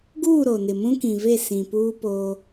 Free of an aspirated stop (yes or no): yes